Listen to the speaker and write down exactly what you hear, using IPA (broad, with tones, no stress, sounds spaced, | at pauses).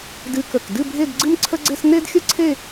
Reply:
d ɨ˧ k ə˧˩ k d ɨ˥˧ bʱ e˥˧ d ɡ͡ǀ ɨ˥ m ǀʰ ə˥ ɡ͡ǀ e˥ s n e˥ d xʲ ə˥ ǀʰ e˥˧